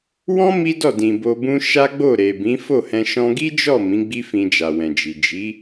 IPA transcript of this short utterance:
w ɔ̃˦ m i˦ d ɔ˦˨ d ĩ˨ b o˧ b ũ˦ ʃ a˦ ɡ͡b o˦˨ ɾ e˨ b ĩ˨˦ f o˦˨ h ɛ̃˧ ʃ ɔ̃˧ ɡ i˦ d͡ʒ ɔ˦˨ m ĩ˨˦ ɡ͡b i˦ f ĩ˧ d͡ʒ a˨ w ɛ̃˨ d͡ʒ i˨ d͡ʒ i˨˦

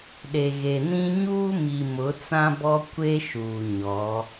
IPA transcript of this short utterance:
ɗ e˨ ɣ e˨ n ĩ˦ ɲ uː˦ m i˨ m ʊ˨˦ t͡s ã˦ b ɔ˦ kʷ e˦ ʃ uː˨ ɲ ɔ˨˦

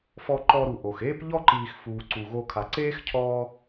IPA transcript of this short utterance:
f ɔ˨ ǃ ɔ˨ ɾ u˩ ʔ o˩ x eː˦ p ʎ ɔ˦ ǃ iː˨ x f uː˩ ǀ u˩ ɣ o˨ kʰ a˨ ǀ eː˥ x cʰ ɔː˦

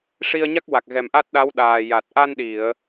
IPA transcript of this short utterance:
ʂ i˧ ə̯ ɲ a˦˥ k̚ w a˨˩ k̚ ɣ ɛ˨˩ m ʔ a˦˥ t̚ ɗ a˧˥ w ɗ aː˨˩ j a˨˩ t̚ ʔ a˧ n ɗ i˨˩˨ ə̯

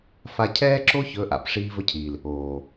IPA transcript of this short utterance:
f a˧ cʰ ɛː˦ ǁ o˦ ç ɵ˨˦ ʔ a̰˦˨ p ʂ iː˦ v ɵ˦ cʰ iː˨ l | oː˨

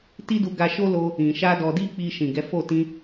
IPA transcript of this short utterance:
t i˦ d u˧ ɡ a˧ ʃ o˦ l o˧ | ĩ˨ ʃ a˧ d ɔ˧ d i˦ k͡p i˧ ʃ ĩ˨ ɡ ɛ˨˦ f o˦˨ t ĩ˧

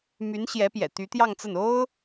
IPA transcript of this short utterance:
m y˧˥ n ɕ j ɛ˧˥ p j ɛ̰˨˩ t̪ y˧˥ t̪ j ɑ˥˧ ŋ t͡s ə˥˩ n o˥ ʊ̯

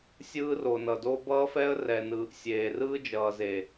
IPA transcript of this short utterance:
sʲ ɯː˦ r o˨ n ʌ˨ d o˦ b ʌː˦ f ɛ˦ ə̯ r ɛ˨ n ɯː˨ ʔ sʲ eː˨ r ɯː˦ d͡ʒ ʌː˨ z e˨

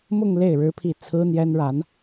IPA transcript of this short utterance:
m ʊ˥˧ ŋ l e˥˩ ɪ̯ ɻ ɻ̩˥ pʰ i˥˩ t͡sʰ ɹ̩˥ n̪ j ɛ˥ n ɻ a˧˥ n

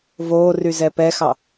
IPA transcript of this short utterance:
v oː r y z ɛ p ɛ x ɑ

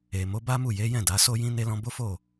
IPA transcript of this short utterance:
e˨ m o˨˦ b a˦ m u˦˨ j e˨˦ j ɛ̃˦˨ d a˨˦ s o˦ j ĩ˦ n e˦ l ɔ̃˦ b o˦ f o˦˨

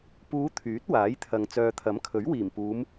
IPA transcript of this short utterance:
p uː˨˧ t̪ʰ yː˨˥ t̚ w aː˨˥ j t̪ʰ ɐ˨ ŋ t͡s œː˨ t̪ʰ ɐ˨˥ m kʰ ɵ˨˥ ɥ w iː˨˩ m p uː˨˧ m

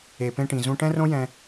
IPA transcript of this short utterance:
e˨ p ẽ˧ ʈ ĩ˨ z ũ˧ ʈ ɛ̃˦ r õ˦ j ɛ̃˧

